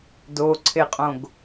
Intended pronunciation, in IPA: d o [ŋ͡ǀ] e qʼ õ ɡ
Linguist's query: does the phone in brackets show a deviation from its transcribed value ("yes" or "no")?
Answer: yes